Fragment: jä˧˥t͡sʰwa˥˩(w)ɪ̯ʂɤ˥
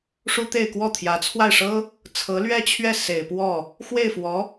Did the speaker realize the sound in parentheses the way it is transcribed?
no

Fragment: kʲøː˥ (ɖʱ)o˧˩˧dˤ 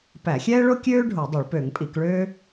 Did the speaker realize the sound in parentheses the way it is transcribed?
yes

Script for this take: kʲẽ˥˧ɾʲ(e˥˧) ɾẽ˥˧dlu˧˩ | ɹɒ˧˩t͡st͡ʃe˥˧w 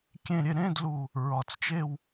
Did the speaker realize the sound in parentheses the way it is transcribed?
yes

